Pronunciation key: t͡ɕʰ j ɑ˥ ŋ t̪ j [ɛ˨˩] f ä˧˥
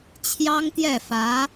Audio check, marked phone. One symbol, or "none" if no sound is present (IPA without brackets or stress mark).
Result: ɛ˥˩